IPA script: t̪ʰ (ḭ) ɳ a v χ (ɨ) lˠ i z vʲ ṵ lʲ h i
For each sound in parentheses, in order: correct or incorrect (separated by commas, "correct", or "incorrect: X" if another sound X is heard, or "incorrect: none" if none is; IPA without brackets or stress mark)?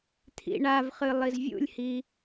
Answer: correct, correct